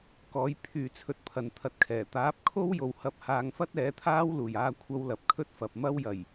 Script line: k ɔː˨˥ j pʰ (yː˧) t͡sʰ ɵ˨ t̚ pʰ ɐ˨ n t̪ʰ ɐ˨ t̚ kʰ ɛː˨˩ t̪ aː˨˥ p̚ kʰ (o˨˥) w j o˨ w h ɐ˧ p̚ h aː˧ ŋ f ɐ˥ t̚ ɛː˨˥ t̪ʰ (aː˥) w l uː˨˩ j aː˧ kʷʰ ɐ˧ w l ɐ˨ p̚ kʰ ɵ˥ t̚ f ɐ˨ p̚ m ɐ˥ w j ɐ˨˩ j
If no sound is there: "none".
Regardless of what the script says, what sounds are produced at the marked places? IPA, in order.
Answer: yː˨, o˥, aː˥

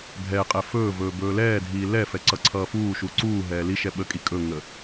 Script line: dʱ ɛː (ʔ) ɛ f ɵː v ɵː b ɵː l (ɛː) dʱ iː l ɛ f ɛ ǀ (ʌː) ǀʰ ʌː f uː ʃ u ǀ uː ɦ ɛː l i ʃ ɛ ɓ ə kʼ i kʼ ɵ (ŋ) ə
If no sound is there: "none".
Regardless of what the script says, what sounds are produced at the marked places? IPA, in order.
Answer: qʼ, ɛː, ʌ, ŋ

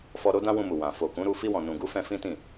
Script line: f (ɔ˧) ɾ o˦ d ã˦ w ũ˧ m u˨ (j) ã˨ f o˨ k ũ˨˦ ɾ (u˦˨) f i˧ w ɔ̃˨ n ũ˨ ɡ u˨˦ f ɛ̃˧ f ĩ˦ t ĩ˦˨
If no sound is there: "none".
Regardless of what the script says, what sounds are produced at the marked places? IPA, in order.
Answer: ɔ˧, w, u˧

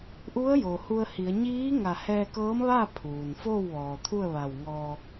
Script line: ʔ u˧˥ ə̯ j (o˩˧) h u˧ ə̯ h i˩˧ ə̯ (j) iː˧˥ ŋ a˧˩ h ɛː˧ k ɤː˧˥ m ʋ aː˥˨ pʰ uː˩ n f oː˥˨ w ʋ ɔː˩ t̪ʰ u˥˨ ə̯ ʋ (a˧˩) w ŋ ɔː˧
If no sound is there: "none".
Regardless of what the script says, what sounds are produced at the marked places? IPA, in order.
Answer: o˩, ɲ, a˧˩

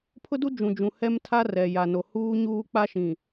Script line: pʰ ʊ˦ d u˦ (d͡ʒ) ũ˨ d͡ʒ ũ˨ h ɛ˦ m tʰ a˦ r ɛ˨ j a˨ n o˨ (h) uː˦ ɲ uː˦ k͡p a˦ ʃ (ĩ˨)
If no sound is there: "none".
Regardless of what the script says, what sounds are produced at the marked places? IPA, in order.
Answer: d͡ʒ, h, ĩ˨

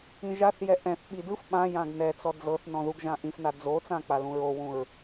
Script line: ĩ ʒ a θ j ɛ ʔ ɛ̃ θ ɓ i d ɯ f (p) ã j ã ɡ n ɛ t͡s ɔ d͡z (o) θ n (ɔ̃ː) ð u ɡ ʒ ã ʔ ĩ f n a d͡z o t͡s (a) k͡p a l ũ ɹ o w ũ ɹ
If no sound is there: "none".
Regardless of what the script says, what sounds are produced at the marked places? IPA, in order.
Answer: ɓ, ɤ, ɔ̃, ã

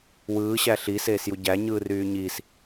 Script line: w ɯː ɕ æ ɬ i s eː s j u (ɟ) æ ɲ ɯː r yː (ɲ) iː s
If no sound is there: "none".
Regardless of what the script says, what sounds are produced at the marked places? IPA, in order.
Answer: ɟ, ɲ

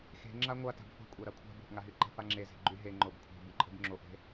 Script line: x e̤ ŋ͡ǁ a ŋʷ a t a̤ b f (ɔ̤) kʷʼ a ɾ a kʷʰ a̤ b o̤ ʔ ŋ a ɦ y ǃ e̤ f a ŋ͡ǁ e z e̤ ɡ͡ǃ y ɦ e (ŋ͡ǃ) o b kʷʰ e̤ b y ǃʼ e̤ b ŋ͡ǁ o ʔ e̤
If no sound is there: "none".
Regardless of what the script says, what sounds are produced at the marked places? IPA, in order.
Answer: o̤, ŋ͡ǃ

